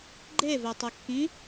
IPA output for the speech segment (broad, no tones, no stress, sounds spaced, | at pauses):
ɡ͡ǃ e v ɛ tˤ ɘ kː ĩ